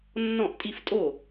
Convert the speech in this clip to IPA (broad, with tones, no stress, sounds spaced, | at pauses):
nː ɔ̃˥˩ ʔ tʼ i˥˧ f tʼ o˥˩